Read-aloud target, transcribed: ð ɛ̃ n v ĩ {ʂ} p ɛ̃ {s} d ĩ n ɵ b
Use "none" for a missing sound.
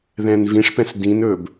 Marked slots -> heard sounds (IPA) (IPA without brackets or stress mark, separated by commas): ʂ, s